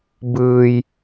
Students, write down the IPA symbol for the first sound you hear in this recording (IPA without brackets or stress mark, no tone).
b